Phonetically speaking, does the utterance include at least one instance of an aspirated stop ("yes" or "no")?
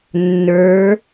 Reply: no